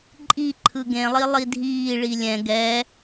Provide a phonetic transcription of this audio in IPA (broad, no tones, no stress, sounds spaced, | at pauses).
ǃʼ i ǃʰ ɯ ɡ ẽ lˠ i lˠ i dʱ iː ɭ i lʲ ɛ̃ ɡ ɛː